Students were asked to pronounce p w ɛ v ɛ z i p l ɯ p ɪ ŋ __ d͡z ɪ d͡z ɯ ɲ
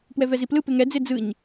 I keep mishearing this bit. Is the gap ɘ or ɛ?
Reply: ɛ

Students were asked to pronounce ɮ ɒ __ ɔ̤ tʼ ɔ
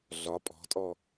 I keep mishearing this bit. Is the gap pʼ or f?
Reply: pʼ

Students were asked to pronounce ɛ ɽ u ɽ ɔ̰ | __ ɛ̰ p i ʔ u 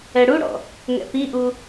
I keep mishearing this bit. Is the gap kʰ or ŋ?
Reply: ŋ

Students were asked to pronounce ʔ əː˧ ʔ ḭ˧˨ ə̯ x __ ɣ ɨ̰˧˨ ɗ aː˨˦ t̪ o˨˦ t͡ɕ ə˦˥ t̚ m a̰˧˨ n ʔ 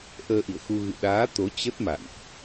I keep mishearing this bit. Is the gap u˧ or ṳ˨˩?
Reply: u˧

